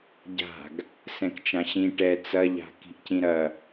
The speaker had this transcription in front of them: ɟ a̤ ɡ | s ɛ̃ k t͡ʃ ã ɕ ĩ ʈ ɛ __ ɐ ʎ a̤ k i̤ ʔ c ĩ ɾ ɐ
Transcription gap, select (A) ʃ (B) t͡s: B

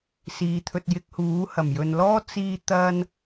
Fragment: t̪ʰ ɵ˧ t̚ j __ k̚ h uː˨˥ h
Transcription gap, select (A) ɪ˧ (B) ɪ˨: A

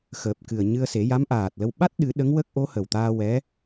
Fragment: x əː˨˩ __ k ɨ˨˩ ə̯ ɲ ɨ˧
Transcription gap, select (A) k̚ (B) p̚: B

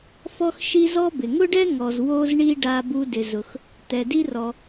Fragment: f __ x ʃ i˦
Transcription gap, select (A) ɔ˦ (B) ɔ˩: A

